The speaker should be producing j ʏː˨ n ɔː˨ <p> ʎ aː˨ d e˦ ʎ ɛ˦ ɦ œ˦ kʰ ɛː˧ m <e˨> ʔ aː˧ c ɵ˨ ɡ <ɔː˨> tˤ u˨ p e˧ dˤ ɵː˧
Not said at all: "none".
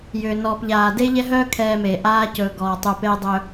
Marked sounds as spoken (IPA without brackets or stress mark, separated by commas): p, e˨, ɔː˨